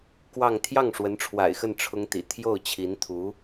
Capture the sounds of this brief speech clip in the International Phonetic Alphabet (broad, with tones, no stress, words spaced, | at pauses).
kwɑ˥˧ŋ t̪ʰjɑ˥˩ŋʂwə˧˥nʈ͡ʂʰwa̰˨˩ɪ̯xə˥˩n ʈ͡ʂʰʊ˥ŋt̪ḭ˨˩ t̪ʰjo˥˩ʊ̯t͡ɕʰi˧˥nt̪ʰu˧˥